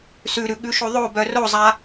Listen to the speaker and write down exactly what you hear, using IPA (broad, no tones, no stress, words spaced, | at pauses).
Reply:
sʉɾʉ ɠʉʃoðˤobœ rozˤa